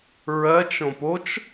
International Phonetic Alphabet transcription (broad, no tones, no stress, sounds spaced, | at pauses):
ɹ ɜ t͡ʃ õ p o t͡ʃ